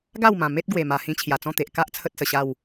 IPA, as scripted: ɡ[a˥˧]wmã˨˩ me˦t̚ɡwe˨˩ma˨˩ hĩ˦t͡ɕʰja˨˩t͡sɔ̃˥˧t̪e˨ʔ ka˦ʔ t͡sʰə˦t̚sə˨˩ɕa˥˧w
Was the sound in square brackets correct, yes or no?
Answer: yes